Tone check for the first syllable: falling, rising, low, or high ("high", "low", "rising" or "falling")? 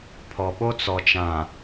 low